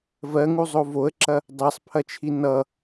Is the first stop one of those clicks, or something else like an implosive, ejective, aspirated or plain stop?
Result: click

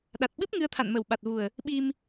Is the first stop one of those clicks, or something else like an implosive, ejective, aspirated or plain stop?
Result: implosive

